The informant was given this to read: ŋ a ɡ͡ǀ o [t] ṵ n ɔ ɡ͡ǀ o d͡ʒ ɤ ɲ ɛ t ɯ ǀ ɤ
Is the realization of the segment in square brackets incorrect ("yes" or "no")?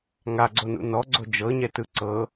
yes